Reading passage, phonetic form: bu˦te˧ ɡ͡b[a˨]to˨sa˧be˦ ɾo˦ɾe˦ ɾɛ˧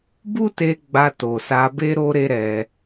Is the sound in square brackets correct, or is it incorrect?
incorrect